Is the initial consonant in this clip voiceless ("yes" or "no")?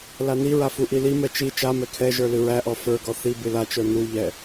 no